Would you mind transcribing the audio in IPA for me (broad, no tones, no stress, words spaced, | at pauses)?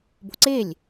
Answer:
bo̤ǀelʲ